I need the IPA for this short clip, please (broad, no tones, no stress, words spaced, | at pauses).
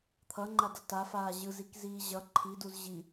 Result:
t̪ʰʌŋ͡ǃadʌ tafaː ʑɯzikziː ʑʌ ǃʰiduz ʑi